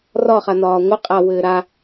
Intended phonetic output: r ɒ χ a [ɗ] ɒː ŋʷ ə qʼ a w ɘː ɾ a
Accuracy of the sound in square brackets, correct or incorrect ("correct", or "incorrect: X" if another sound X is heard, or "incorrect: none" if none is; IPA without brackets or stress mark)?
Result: incorrect: n